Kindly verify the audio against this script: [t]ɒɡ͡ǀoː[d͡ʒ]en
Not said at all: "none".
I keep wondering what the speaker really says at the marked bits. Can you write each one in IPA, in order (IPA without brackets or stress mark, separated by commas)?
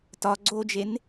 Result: t, d͡ʒ